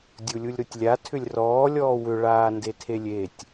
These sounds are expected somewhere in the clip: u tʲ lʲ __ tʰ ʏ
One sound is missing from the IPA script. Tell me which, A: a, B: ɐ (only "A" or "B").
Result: A